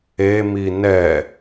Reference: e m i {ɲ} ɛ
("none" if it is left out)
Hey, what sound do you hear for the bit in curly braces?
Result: n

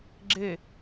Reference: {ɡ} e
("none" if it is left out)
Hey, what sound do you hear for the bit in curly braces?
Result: ɡ͡ǁ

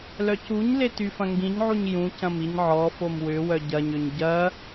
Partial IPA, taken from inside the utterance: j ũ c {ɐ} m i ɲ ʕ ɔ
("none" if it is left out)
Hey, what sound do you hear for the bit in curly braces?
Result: ɐ̃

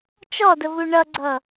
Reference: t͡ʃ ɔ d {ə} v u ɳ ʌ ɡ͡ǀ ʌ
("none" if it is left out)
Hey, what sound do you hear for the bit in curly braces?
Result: ə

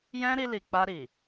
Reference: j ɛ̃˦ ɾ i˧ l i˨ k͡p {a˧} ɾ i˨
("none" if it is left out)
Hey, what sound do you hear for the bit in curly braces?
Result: a˧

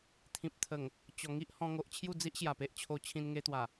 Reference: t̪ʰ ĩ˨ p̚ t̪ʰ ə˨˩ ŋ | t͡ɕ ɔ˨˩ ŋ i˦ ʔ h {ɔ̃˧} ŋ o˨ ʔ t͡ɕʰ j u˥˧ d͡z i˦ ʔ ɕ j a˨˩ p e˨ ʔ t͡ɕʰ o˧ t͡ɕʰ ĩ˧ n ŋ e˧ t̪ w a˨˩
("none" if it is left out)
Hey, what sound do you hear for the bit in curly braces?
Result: ɔ̃˧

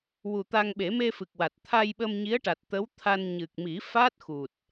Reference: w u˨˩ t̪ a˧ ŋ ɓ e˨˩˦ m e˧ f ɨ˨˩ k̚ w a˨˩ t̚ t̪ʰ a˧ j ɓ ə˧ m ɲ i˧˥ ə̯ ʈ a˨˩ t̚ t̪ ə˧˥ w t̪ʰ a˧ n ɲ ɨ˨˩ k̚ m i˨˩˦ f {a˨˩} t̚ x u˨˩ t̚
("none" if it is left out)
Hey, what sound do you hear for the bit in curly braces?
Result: a˦˥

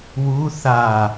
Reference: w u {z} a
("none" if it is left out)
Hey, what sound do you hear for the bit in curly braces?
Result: θ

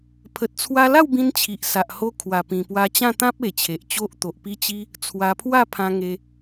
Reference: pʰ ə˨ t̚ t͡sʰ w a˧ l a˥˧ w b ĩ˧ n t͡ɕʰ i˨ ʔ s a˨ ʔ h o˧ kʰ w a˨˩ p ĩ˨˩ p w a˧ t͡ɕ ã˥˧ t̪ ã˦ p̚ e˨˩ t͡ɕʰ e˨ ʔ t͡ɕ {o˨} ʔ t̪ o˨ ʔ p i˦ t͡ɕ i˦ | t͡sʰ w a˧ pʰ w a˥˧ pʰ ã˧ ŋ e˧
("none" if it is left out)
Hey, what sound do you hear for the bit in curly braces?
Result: o˦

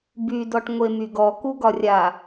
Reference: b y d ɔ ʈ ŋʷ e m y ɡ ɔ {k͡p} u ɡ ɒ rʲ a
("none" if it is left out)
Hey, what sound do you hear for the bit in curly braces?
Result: k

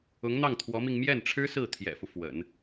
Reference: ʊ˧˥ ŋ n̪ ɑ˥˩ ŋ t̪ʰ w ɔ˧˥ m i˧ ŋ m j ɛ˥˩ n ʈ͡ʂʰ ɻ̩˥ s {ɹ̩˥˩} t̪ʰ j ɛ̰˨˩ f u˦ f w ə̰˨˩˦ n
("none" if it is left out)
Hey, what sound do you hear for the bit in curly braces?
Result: ɹ̩˥˩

